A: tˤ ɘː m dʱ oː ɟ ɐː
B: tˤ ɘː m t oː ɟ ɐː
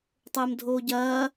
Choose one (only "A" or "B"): A